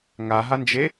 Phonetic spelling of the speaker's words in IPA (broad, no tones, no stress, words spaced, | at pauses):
ŋaɦand͡ʒe